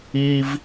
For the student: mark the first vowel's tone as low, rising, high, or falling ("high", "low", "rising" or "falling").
high